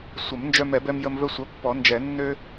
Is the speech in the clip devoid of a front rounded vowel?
no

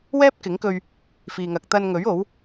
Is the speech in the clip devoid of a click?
yes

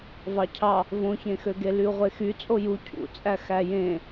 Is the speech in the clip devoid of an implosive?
yes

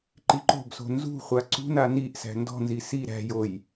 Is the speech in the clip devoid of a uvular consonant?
no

